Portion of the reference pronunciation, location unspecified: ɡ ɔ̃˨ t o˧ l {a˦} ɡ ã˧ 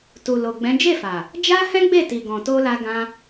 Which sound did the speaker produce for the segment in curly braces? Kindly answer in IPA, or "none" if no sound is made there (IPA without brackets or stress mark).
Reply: a˧